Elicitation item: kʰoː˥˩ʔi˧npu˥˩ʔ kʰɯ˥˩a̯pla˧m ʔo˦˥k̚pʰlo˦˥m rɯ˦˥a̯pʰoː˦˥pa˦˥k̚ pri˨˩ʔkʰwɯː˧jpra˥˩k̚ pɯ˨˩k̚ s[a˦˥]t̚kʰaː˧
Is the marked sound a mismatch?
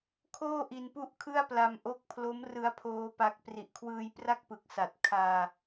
yes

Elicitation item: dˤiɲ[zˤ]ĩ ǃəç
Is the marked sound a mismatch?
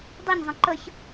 no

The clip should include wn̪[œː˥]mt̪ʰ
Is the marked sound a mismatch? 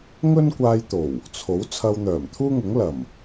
yes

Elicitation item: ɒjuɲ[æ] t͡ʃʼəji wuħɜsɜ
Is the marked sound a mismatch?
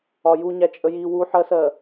no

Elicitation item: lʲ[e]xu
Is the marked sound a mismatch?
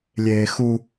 yes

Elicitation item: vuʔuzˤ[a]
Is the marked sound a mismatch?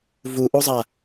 no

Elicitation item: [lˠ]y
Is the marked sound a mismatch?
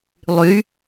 no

